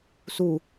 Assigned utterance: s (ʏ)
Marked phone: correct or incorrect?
incorrect